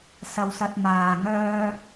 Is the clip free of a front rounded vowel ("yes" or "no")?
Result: no